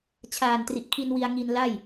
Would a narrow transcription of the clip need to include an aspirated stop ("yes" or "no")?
yes